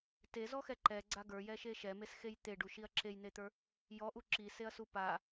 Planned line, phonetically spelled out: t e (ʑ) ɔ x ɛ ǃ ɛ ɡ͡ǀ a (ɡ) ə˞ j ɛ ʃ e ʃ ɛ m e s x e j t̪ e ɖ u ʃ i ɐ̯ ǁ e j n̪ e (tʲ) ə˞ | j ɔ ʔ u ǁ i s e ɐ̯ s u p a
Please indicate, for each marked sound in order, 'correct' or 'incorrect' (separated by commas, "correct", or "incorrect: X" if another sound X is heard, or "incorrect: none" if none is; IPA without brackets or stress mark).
incorrect: z, correct, incorrect: t̪